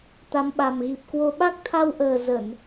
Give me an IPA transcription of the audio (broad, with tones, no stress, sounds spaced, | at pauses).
t̪ a˨˦ m ɓ a˨˩ m ɣ i˨˩ p̚ k w o˧ ɓ a˦˥ k̚ t̪ʰ a˧ w ʔ əː˨˩ z ə˧˩˨ n